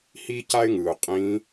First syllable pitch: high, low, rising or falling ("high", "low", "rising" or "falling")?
high